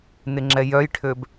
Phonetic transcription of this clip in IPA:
n ɪ ŋ͡ǁ ɛ j œ j ʈʰ ø b

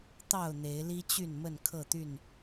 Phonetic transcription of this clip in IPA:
t̪ ɑ˥˨ ʊ̯ n̪ e˨˦ ɪ̯ l i˦ t͡ɕ y˥˨ n m ə˥˨ n kʰ ɤ˥˨ t̪ y˥˨ n

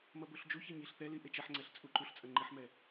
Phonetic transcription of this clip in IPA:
m ɐ b o ɬ d͡ʒ u ç e ɲ i ɬ θ ɛ l i ʔ e t͡ʃ ɛ ħ ŋ͡ǀ ɛ ɬ t͡sʼ u ǃ u ɬ t͡sʼ ɐ ŋ͡ǃ i ħ m ɛ

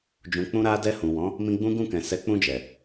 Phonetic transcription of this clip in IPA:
d͡ʒ ũ˨ k͡p ũ˧ ɾ a˧ d ɛ˧ h ũ˨ w ɔ̃˨˦ | m ĩ˧ ɡ͡b ũ˦ ɡ ũ˦˨ k ɛ̃˨ s ɛ˨˦ k͡p ũ˧ d͡ʒ ɛ˨

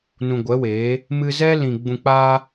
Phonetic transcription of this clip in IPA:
n ũ˨ ɡʷ ɛ˨˦ w eː˨˦ | m ɨ˧ z ɛ˦ l ĩ˨ ɡ͡b ũ˨ k͡p aː˧

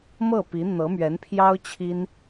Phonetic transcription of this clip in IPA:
m ɤ˥˩ p i˧˥ n̪ ɤ˧˥ m ɥ ɛ˧˥ n pʰ j ɑ˥ ʊ̯ t͡ɕʰ i˥ n

